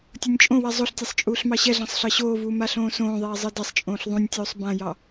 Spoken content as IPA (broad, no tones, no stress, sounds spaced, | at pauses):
tʲ o nʲ t͡ʃʼ õ w ɛ zˤ o ɬ tʲ e sˤ t͡ʃʼ uː ɬ m ɑ ɕ ɛ ɮ ɑ̃ sˤ ɬ ɑ ɕ oː v uː m a ɬ õː s õː ðˤ eː zˤ ɯ d ɛ sˤ t͡ʃʼ õː ɬ ðˤ ũ nʲ tʲ uː sˤ b ã j ɑ